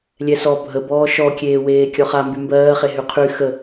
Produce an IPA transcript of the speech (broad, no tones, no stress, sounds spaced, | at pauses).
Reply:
lʲ ɛ s ɔ bʱ ə b ɔː ʃ ɔ kʲ eː w eː kʲ ɔ χ a m b y m b ɜː χ e ɦ y qʰ y x ə